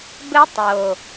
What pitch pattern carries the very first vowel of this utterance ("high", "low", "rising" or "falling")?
high